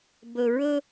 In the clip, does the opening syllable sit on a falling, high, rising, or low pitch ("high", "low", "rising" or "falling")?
low